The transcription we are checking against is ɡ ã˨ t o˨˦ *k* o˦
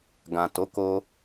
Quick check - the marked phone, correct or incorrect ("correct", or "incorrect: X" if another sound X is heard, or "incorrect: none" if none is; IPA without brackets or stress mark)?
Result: correct